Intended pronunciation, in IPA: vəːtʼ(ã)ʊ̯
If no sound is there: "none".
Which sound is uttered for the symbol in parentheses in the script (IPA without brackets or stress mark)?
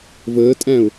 æ̃